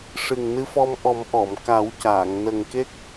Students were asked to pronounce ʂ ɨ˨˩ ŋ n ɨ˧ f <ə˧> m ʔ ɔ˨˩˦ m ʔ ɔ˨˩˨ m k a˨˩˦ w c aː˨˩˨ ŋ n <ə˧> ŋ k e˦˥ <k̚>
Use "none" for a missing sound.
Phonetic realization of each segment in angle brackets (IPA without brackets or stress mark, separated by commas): ɔ˧, ə˨˩, k̚